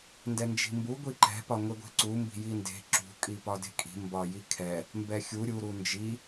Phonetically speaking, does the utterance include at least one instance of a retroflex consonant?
no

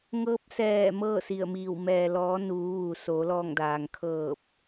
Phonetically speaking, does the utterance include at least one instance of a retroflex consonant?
no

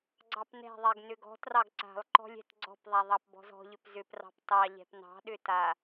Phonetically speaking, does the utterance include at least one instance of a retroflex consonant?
no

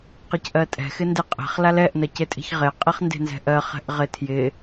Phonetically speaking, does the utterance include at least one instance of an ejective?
yes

